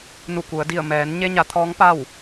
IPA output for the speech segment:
n u˧˩ k u˩˧ ə̯ d i˧˩ ə̯ m ɛː˩˧ n ɲ e˧ ɲ a˩˧ t̪ʰ ɔː˧˥ ŋ p a˥˨ w

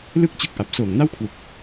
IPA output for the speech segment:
l ɯ˥˩ k̚ t͡ɕ ɯ˦˥ k̚ ʔ a˨˩ p̚ s oː˨˩ ŋ n a˥˩ w kʰ w u˨˩ k̚

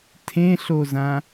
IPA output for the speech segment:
tʰ ẽ ɬ o z ã

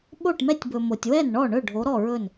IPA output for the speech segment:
ɓ o˥˩ ʈ m ɛ˦ tʲ b ɵ˨ m o˨ tʲ w ɛ˥˩ n ɳ ɔ˥˩ ɳ ɵ˥˩ ɖʱ o˨˥ ɾ ɔ˥˩ ɹ ɵ˥˩ n

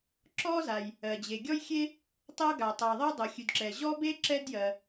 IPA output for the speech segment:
ǁ ɔ˥ z a˩ j | ɜ˩ d͡ʑ e˩ ɡʲ ɔ˥ j xʲ e˥ | tˤ ɤ˥ ɡ a˩ tˤ ɜ˩ ðˤ ɤ˥ dˤ ɤ˩ xʲ ʉ˩ d ǁ ɛ˩ ʑ ɔ˥ b e˥ ǁ ɛ˥ d j ɜ˩

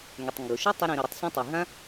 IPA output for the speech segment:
ŋ ø˩ tˤ ŋ ɡ ʊ˩ ʃ ʏ˥ tˤ ʊ˧ ɾ ĩ˩ ɾ ʊ˩ ɾ ʏ˧ tˤ s ĩ˧ tˤ i˩ ɦ ã˥

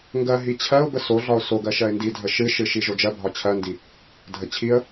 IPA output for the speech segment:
ŋ ɡ ɜ ɦ i t͡ɕʰ ɜ ʊ̯ b ə s o ɮ ɒ ʊ̯ s o ɡ ɜ ʃ ɜ ɪ̯ n d i dʱ ə ʃ ɨ ʃ ɨ ʃ i ʒ o d͡ʒ ɜ bʱ ɒ t͡ɕʰ ɜ n d i | dʱ ə t͡ɕʰ i ə̯

